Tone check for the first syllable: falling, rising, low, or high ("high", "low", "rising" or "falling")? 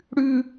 high